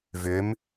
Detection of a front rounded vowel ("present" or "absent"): present